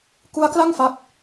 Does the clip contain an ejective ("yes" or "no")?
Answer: no